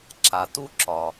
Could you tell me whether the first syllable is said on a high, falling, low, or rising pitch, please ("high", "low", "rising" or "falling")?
low